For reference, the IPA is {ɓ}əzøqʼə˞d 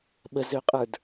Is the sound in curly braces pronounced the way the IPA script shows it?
yes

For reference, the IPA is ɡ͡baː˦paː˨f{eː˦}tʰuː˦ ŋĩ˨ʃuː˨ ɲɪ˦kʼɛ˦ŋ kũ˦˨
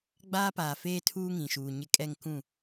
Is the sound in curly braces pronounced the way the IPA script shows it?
yes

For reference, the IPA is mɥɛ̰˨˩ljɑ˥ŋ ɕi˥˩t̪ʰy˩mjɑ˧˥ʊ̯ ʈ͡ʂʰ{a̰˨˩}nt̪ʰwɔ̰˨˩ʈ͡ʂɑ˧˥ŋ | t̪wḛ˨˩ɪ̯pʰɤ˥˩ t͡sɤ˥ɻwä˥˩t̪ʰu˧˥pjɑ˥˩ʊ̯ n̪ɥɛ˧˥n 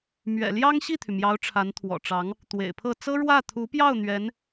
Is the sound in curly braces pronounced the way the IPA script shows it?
no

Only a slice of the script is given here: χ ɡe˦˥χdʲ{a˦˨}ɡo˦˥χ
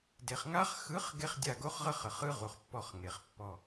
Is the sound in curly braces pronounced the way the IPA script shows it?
yes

